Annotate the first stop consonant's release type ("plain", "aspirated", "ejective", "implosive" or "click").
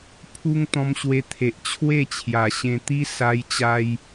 aspirated